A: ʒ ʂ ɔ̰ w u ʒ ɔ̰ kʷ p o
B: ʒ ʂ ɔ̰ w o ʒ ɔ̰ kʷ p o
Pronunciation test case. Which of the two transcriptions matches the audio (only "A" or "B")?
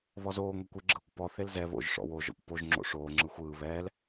B